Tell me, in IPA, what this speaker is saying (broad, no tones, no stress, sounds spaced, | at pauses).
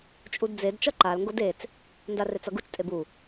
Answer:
t͡ʃʼ u d d͡z e d t͡ʃ ʌ ǃ a l ŋ ɡ o d e t͡s | n d a r e t͡s ʌ ɡ u t͡ʃ tʼ e b u